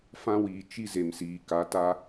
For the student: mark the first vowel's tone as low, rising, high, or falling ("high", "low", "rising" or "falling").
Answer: high